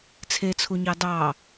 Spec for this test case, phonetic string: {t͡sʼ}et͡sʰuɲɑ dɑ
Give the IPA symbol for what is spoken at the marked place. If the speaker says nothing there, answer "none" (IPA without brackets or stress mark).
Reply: t͡sʰ